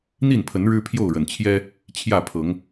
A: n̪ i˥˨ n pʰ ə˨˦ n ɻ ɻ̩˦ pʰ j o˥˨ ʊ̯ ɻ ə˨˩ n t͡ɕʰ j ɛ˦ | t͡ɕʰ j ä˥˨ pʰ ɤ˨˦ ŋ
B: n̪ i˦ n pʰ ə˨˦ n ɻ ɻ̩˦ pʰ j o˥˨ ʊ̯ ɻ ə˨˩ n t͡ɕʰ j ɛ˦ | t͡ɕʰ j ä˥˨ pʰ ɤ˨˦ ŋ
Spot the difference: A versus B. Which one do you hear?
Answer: A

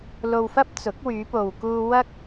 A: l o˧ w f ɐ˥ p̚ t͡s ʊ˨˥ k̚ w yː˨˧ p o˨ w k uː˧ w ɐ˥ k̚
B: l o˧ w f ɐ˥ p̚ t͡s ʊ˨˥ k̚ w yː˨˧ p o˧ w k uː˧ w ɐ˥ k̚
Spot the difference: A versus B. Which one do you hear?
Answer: A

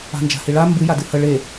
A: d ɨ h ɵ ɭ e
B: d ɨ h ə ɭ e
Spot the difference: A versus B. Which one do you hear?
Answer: B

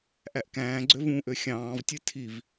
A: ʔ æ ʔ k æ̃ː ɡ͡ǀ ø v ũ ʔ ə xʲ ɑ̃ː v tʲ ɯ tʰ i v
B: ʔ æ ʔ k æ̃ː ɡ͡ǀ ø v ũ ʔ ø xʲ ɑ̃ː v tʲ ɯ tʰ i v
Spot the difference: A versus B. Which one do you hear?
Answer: B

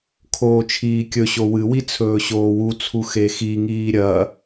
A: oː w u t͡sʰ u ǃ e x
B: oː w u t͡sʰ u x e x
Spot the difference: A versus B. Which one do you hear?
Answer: B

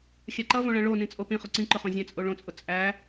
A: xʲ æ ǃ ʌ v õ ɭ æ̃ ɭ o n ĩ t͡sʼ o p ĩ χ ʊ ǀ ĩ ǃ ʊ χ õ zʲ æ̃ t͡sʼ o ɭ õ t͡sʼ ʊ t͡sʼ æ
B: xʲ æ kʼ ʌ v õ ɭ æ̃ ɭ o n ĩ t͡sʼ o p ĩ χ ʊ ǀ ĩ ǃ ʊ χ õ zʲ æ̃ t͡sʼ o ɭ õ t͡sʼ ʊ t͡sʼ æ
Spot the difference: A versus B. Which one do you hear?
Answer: A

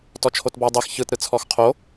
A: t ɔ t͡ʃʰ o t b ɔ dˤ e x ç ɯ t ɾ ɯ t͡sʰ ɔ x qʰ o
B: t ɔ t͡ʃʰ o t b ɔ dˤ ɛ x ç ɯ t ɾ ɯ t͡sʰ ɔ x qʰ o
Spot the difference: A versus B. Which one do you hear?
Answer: A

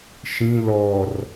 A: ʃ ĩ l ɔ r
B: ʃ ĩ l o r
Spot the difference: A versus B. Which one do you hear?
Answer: A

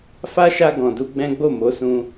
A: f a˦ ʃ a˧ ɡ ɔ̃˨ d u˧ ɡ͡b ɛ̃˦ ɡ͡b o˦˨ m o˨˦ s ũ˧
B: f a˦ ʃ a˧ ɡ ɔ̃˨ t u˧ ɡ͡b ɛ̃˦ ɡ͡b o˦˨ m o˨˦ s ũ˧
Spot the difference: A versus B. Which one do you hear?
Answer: A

